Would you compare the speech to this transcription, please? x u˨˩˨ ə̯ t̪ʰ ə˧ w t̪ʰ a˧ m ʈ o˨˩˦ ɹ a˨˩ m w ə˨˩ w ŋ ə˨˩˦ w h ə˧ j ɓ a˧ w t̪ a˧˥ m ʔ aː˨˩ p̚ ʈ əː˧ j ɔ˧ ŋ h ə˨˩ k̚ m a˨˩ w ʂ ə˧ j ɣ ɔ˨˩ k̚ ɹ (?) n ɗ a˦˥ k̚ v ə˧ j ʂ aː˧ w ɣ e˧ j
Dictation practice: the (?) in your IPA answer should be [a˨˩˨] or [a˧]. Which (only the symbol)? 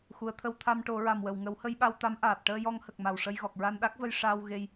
a˧